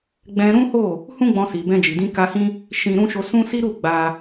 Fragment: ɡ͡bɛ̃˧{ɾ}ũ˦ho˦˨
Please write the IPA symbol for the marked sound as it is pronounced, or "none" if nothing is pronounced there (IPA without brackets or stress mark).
ɾ